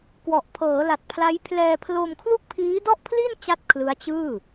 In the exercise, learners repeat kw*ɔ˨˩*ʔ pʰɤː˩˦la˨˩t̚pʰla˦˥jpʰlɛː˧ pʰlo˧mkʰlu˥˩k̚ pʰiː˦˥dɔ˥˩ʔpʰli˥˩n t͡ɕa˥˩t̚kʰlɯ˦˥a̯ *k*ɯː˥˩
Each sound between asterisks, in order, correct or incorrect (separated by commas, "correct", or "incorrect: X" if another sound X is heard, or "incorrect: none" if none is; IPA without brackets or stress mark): correct, incorrect: t͡ɕ